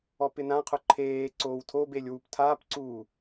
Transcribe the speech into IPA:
ɔpɪnãqʰʊ ǃʰeː ǀoːwtʰobelʲ wuptʰapǀuː

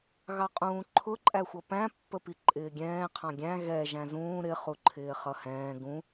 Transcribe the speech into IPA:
ɣɑqʼũːǃʰʊ ǃʼæxʷʌpæ̃ pːəpiǃʼɪːɡʲɛ̃ː qʰɑ̃ɡʲæ̃ ɣɛ ʒæ̃zũː ɾɪ χuǃʰɪːχʌhɛ̃ː ɡũ

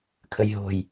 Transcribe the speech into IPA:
kʰəjɦo̤j

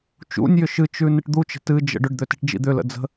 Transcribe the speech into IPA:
t͡ʃṵnʲjʏ ʃɨt͡ʃʉ nɨʈd̪ut͡ʃə̤ tɨd͡ʒə̰ ɖʏɖd̪ø ti̤ʈd͡ʒḭd̪ʏlə̰ d͡zə̤

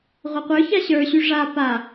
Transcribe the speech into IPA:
ʁʷʌqʷə˞ça ɕə˞ɕy ʐa pa

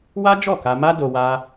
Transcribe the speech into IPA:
wa˦ d͡ʒɔ˦˨ka˧ ma˦do˧ wa˦

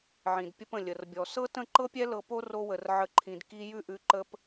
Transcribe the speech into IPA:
ʕĩ˨d pʲə˧pə̃˨ lʲə˨rbʲɔ˨ sɤ˦ tə̃˦˨ǃɤ˦pʲɛ˦ lɤ˧po˦ro˧wə˨r ʕə˦ǃʰĩ˧d ki˧ jʉ˦ʔʉ˧ǃə˦p

